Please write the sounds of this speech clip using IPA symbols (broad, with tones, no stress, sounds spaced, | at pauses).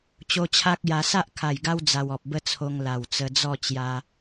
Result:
t͡ɕ o˧ t͡ɕʰ a˦ k̚ j a˧ s a˦ ʔ kʰ a˨˩ j ɡ a˦ w d͡z a˧ w ɔ˨ p̚ b ə˦ t͡sʰ o˧ ŋ l a˨˩ w t͡s ə˧ d͡z ɔ˥˧ t͡ɕ j a˧